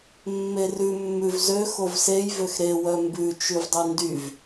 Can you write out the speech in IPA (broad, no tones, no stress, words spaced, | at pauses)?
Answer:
mːerʉ mːʉvzø xovsej vøxɾe wœmbʉ t͡ʃʉvdˤyndyv